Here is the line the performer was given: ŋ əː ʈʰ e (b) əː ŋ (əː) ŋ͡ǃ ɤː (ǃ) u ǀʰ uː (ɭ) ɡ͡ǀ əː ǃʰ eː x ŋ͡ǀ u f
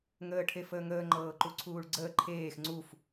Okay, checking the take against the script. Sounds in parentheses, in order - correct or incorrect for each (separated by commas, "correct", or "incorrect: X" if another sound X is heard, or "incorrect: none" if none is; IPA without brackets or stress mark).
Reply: incorrect: f, correct, correct, correct